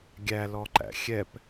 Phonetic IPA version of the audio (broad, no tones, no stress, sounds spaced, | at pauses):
ɡʲ æ l ɔ ǃ æ̰ xʲ ɛ p